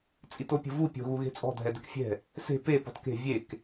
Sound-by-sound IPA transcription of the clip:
t͡sʼ i t o pʲ o̤ v u pʲ o̤ ɣ u ɣ e̤ t͡sʼ ɔ̤ dʱ ɛ d ɛ̤ k fʲ ɛ̤ | s e̤ p e p ɔ̤ t k e̤ vʲ e k

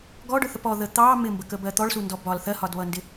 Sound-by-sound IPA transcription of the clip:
ɡ ɔ ɖ ʊ θ ə p ɔ ð ə t̪ ɑ m ɪ m b ə k ə b ɜ t̪ ɔ ɭ s u n d ɔ b ɒ l θ ɜ h ɒ d β ʌ n d ɪ

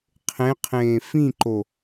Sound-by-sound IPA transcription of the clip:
qʰ ẽ qʰ ẽː f ĩ ǃ o

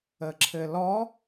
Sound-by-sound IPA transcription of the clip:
ə ǁʰ ɘ l ɔ

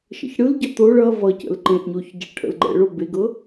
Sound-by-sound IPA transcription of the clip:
ʃ ə̰ ç ɽ ɯ l ɟ ʌ t̪ o ɭ ʌ v ʌ c ə̰ l ǃ ẽ ʔ ɲ o ç ɟ ə ɭ ʈʰ ə̰ l ɡ͡ǃ ɛ̰ ɭ o b e ɡ ɤ

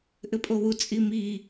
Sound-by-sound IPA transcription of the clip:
ʔ ɘ pʼ o w u t͡sʼ i m i

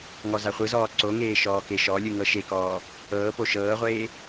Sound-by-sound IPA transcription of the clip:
ŋ ɔ z a χʷ ɯ z ɔː ǀ o ŋ eː ʃ ɔː k e ʃ ɔ lʲ ɯ ŋ ɤ ʃ e k ɔː | ɤː p o ʃ ɤː ʁʷ eː

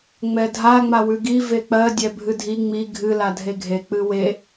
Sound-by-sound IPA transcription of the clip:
ŋ͡m ɛ dʱ a ŋ͡m a w ʉ ɡ i v e k͡p ɜ dʲ ɛ bʱ ɨ dʱ i ŋ͡m i ɡʱ ɨ l a dʱ e ɡʱ e k͡p ɨ w e

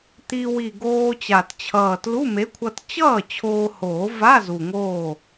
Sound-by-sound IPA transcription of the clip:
t̪ i˧ w i˨˩ ɡ oː˧ t͡ɕ a˨˩ t t͡ɕʰ ʌː˨˩ t l u˧˥˧ m e˨˥ kʷʰ ʌ˧ t t͡ɕ ʌː˥˩ t͡ɕʰ oː˧ h oː˨˩˦ v a˧˥˧ z u˨˩ ŋ oː˥˩

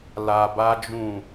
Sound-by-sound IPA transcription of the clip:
l a˧ b a˦ d͡ʒ ũ˦˨

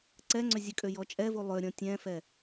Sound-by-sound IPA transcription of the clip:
ǀ ɛ ŋ͡ǀ ʏ zʲ ə kʼ ø j ɔ t͡ʃʼ ɛ v u lˠ ø ɾʲ ɔ̃ tʲ ɛ̃ f ɛ

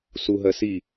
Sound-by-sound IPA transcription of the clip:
s u ɦ ɜ s i

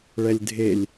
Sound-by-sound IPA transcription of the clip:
ɭ ɛ lʲ dʱ e lʲ

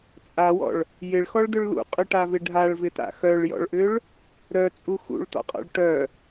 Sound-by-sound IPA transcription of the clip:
t͡sʼ a w ɔ̰ ɭ | j ɪ ɭ x ɔ ɭ d ʏ ɭ l ṵ qʼ ʏ ʈ a v ɪ ɖʱ a ɭ v ɪ t a̰ x œ ɭ j ɔ̰ ɭ ʔ ʏ ɭ | ɾ œ t͡sʼ u x ṵ ɭ t ɔ̰ qʼ ɔ̰ ɭ ʈ œ

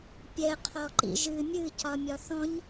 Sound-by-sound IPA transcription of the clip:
pʲ ɛ qʰ ɔ ǃ ḭ ʒ ɨ mʲ ɨ c ɒ mʲ ɒ θ ɔ̃ ɲ

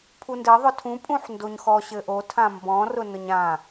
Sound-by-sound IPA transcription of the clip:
pʰ u n d ɘ ðˤ ʊ tʰ ũ pʼ ũ ħ n d o ɲ x ɔ ɕ ɘ ʔ o tʰ ã m b ɔ̃ r ʊ n ʊ ɲ ã

